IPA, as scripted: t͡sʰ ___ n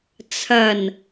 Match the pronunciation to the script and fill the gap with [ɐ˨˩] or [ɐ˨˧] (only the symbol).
ɐ˨˩